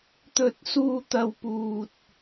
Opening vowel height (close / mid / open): mid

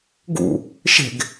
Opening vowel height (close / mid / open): close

